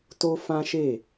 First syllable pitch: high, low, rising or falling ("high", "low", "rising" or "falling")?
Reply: high